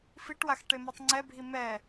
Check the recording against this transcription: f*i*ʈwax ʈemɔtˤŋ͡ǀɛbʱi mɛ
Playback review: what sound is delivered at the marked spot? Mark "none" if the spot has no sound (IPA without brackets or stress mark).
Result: i